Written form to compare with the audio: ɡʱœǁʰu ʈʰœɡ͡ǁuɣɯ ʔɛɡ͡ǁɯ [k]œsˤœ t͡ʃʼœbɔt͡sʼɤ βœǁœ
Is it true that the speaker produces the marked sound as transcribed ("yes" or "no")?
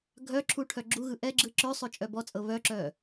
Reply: no